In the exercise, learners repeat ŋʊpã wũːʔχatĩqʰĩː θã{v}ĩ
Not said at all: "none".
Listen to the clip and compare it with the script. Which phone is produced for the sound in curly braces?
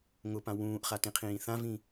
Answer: v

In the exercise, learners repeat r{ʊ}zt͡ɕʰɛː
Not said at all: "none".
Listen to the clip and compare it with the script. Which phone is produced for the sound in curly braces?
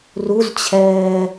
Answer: u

